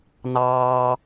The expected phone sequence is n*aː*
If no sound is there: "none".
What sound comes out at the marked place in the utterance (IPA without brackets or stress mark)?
ɑː